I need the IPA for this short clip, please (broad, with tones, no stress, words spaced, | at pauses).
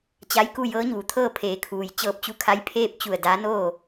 t͡ɕa˧˥jku˥˨ jɤː˧˥ɲuː˩˧t̪ʰɤː˥˨ pʰeː˩˧kʰuː˩j t͡ɕɤː˧p̚t͡ɕu˧˥kʰa˧˥j pʰeː˥˨p̚t͡ɕu˧˩ə̯ daː˧˥noː˥˨